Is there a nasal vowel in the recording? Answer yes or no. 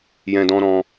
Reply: yes